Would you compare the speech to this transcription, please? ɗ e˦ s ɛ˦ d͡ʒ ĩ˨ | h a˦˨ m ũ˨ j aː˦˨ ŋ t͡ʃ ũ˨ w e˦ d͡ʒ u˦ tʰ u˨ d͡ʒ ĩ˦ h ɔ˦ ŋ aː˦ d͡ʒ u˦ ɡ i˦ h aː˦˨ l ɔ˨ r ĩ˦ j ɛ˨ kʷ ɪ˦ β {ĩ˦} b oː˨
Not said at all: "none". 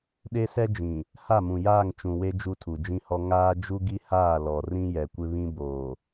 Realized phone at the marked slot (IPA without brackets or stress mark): ĩ˦